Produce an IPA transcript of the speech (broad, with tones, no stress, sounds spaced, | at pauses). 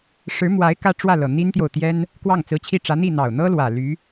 ʂ ɻ̩˧˥ m w a˧˥ ɪ̯ k ä˥ ʈ͡ʂ w ä˥˩ l ɤ˨˩ n̪ i˥ n t̪ j o˨ ʊ̯ t̪ j ɛ˥ n | k w ɑ˥˩ ŋ t͡s ɹ̩˧˥ t͡ɕʰ i˥˩ ʈ͡ʂ ä˧˥ n̪ i˥˩ n̪ ɑ˨˩ ʊ̯ n̪ ɤ˥ l w ä˨˩ l y˧˥